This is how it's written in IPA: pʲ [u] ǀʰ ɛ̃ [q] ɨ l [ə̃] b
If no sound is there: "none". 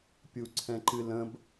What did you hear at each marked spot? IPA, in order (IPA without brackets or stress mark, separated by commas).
u, ǃ, ə̃